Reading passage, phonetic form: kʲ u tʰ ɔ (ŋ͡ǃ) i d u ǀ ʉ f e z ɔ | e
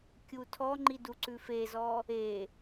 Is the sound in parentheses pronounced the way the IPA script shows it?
yes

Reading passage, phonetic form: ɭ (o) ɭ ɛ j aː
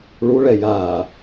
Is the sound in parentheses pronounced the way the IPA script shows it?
no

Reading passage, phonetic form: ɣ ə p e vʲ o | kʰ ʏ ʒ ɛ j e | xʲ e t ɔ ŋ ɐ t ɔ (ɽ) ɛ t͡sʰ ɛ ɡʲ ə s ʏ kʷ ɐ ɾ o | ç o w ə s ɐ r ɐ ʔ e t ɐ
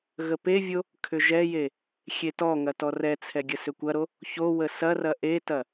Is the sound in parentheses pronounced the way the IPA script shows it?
no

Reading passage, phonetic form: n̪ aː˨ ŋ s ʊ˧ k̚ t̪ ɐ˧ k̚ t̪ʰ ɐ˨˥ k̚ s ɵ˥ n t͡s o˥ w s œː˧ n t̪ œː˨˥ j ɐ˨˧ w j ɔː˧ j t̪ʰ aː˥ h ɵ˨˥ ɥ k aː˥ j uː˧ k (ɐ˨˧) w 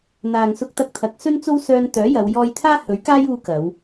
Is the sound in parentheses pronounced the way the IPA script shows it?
yes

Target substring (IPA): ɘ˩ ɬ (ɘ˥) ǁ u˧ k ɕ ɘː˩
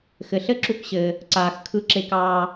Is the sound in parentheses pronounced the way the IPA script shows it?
yes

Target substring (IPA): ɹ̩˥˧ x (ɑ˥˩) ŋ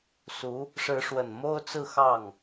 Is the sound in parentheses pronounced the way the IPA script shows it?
yes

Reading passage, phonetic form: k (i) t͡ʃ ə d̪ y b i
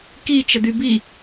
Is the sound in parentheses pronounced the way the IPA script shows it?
yes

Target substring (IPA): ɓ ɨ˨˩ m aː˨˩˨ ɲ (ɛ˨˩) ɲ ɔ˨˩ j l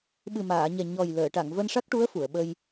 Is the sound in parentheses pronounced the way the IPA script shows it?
yes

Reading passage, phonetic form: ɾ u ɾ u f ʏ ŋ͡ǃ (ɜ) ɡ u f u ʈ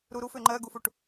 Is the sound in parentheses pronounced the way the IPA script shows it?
yes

